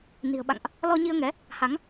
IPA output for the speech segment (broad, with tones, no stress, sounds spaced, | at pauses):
n i̤˨˩ ə̯ ɓ a̰˧˨ ŋ ʔ | l ɔ˧ ɲ i˧ ə̯ ŋ ɛ˨˦ | h a˨˦ ŋ